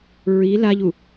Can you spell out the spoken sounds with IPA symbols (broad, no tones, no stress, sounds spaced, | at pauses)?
ɹ i l a ʎ u